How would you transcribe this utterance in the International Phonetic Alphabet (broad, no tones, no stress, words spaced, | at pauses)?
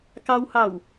kɑwhɑw